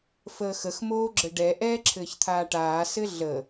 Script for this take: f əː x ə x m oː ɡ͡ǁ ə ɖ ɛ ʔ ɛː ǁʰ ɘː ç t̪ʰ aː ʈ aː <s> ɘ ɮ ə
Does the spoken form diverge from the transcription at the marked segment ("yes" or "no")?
no